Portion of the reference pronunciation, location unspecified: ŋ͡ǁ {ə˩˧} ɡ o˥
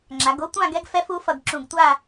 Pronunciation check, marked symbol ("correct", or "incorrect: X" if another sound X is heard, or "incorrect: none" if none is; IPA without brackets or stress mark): incorrect: a˩˧